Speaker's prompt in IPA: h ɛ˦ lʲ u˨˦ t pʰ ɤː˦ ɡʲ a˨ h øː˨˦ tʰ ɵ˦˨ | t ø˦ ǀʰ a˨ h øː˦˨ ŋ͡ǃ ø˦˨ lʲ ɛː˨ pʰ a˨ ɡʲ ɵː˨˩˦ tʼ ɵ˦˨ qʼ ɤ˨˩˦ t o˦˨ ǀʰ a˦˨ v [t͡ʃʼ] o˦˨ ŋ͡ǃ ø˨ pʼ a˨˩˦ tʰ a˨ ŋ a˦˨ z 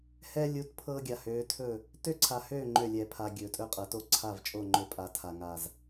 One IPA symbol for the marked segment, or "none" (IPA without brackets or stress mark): t͡ʃʼ